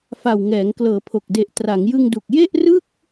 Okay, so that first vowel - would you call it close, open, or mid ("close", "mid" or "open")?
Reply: open